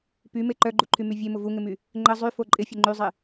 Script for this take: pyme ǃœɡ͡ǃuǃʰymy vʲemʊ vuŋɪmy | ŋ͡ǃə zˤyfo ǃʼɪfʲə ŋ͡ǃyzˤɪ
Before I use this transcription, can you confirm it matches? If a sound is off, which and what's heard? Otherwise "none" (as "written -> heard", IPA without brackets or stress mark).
none